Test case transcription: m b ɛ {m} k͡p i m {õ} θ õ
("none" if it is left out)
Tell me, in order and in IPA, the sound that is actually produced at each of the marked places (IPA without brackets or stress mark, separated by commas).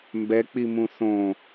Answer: none, ũ